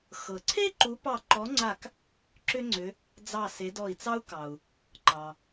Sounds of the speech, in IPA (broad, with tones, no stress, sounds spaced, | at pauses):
x ɤ˩ ǀʰ e˥ ǃ u˨˦ p ɑ˧˩ ǃ ɔ˨˦ ŋ͡ǀ a˧˩ k | ǁ ʏ˥ ŋ͡ǀ ʏ˨˦ | d͡z ɑ˧˩ s e˨˦ d ɔ˧˩ i̯ t͡s ɑ˥ u̯ k ɑ˩ u̯ | ǃ ɑ˩